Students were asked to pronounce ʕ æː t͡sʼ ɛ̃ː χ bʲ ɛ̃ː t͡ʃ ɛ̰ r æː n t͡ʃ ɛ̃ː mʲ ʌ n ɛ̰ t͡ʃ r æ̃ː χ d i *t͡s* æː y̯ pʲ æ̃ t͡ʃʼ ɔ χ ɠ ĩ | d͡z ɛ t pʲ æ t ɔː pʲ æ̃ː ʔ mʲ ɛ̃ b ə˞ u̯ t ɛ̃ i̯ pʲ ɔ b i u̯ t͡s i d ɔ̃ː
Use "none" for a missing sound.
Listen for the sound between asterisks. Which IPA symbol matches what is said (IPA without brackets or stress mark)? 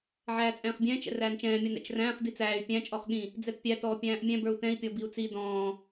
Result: t͡s